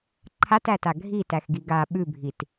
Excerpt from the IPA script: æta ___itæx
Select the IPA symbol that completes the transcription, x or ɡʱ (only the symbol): ɡʱ